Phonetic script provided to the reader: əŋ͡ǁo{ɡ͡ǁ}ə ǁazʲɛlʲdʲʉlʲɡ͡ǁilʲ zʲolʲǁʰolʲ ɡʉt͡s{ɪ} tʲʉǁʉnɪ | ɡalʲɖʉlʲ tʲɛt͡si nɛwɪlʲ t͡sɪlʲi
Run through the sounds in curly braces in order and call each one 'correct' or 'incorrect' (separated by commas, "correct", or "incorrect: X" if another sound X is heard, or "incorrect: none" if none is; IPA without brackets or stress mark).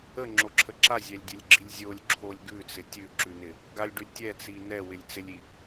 incorrect: ǁʰ, correct